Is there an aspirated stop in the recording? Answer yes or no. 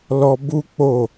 no